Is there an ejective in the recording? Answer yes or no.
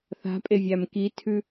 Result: yes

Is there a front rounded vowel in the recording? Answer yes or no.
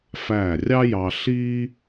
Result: no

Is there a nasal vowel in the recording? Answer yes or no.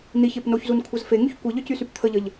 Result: no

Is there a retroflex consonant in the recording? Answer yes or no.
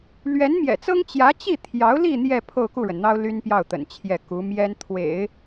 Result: yes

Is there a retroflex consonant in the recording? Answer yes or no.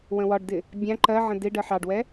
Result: yes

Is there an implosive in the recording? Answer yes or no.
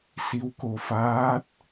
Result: no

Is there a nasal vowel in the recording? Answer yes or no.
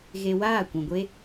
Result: yes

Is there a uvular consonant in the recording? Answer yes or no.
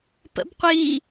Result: yes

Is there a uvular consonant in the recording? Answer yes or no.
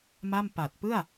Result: no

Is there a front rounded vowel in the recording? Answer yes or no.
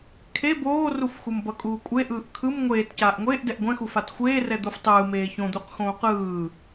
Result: no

